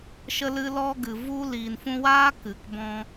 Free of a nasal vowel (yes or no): no